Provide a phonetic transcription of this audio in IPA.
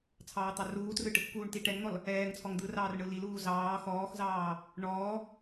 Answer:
t͡sʰ ɑː t̪ ɑ r uː t r ɯ ʈ | k uː ɳ t i ʈ ɛ ŋ n̪ ɔ l | ɛː ŋ t͡sʰ ɔ ŋ d̪ ɯ r ɑː r ɳ ɯ l i l uː z ɑː x ɔː x z ɑː | ɳ ɔː

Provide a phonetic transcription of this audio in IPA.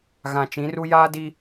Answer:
ɣ ã˨ t͡ʃ ĩ˨˦ r u˦ j aː˦ d i˦

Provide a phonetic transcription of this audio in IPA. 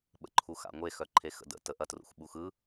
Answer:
ɓ ə̰ ǃʰ u x a̰ ŋʷ e x œ ǃʰ e x ə̰ d ə̰ t ə ʔ ɐ t r ṵ x ɓ u x ɯ

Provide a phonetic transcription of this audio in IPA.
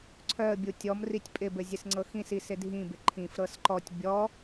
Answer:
ǀʰ œ ə̯ bʲ u tʲ ɔ m r i tʲ pʼ ɪ b ɘ zʲ ɘ s ŋ͡ǀ ɤ x ĩ s i s ɪ dʱ ĩ b ɪ ǃʰ ĩ f ɾ ɤ s ǃ ɔ tʲ bʲ ɔ

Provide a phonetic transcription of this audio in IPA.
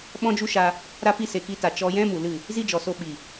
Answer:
ɓ ɔ̃˦ d͡ʒ u˦ ʃ a˧ | ɾ a˦ p i˦ s e˨ k i˧ t a˨ t͡ʃ ɔ˧ j ɛ̃˦ m u˨ l ɨ˦˨ | z i˦ d͡ʒ ɔ˨ s o˧ ɓ i˨

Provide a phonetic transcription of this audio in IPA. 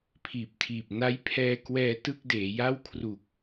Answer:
pʰ iː˨˩ p̚ tʰ iː˨˩ p̚ n a˦˥ j pʰ ɛː˧ k w ɛː˧ t ɯ˥˩ k̚ d eː˩˦ j a˥˩ w kʰ r u˨˩ k̚

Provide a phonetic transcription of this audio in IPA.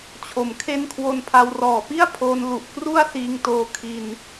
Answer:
t͡ɕʰ o˩˦ m kʰ e˦˥ n kʰ w o˧ n pʰ a˧ w r ɔː˨˩ p i˥˩ a̯ pʰ oː˧ n l u˨˩ ʔ k r u˥˩ a̯ s iː˧ ŋ t oː˧ kʰ i˧ n

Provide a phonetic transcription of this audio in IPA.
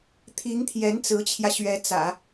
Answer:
t̪ʰ i˧˥ ŋ t̪ʰ j ɛ˧˥ n t͡s ɹ̩˧˥ t͡ɕʰ j ä˧ ɕ ɥ ɛ˧˥ t͡s ä̰˨˩˦

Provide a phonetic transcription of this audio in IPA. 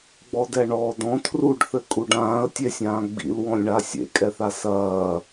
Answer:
ɡ͡b ɔ d ɛ ɳ ɔː d ɔ̃ tʰ r u ɖ θ ɘ kʼ u ɖ ãː ə̯ tʲ e sʲ ãː ɡ͡b ḭ l w ɔ̃ lʲ ɳ a sʲ ḛ kʼ ɛ θ a s ɐː

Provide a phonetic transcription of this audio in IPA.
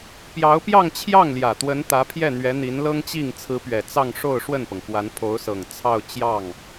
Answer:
p j ɑ˧˥ ʊ̯ p j ɑ˥˧ ŋ t͡ɕʰ j ɑ˥˩ ŋ l j ä˨˩ t̪ w ə˧˥ n t̪ ä˧˥ pʰ j ɛ˥˩ n̪ ɥ ɛ˧˥ n̪ i˧˥ n l ɤ˥ ŋ t͡ɕ i˥˩ ŋ t͡sʰ ɹ̩˧˥ p ɥ ɛ˨˩ t͡s ɑ˥˧ ŋ ʂ o˥˧ ʊ̯ ʂ w ə˥˩ n p ɤ˩ ŋ k w a˧˥ n pʰ o˧˥ ʊ̯ s ɤ˨˩ ŋ t͡sʰ ɑ˥˧ ʊ̯ t͡ɕ j ɑ˥˩ ŋ

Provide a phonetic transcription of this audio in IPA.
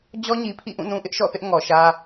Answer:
d͡ʑ ɔ˦ ɲ i˨ pʰ ḭ˦˨ ʔ ũ˦˨ n ũ˦ ʔ ɪ˦ ʔ ʃ ɔ̰˦˨ θ ɪ˦ ʔ ŋ ɔ˨ ʃ ä˦

